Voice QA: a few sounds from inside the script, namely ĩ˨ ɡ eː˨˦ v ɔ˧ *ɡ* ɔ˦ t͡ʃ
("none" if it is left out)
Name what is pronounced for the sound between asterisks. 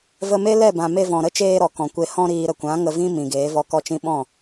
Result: k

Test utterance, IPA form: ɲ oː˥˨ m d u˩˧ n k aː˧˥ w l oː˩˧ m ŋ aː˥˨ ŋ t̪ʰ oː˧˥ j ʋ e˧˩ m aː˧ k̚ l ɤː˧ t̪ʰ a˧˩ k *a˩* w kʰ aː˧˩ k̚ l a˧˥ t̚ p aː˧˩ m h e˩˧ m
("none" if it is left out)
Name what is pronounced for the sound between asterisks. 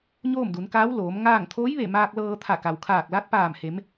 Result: a˩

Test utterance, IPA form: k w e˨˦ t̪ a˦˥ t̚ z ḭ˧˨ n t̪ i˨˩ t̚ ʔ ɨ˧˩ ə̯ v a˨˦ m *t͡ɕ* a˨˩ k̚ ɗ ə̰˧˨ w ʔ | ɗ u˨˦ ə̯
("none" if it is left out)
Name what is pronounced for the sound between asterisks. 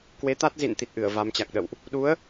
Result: t͡ɕ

